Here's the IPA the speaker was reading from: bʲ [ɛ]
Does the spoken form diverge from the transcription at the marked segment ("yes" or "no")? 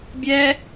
no